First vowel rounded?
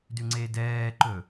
yes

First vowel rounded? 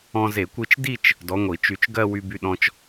yes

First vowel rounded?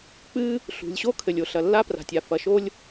no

